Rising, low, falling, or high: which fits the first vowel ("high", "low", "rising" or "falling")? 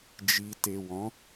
low